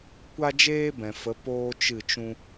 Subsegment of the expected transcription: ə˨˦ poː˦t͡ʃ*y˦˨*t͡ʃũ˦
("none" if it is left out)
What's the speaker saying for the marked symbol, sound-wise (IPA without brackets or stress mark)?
ɨ˦˨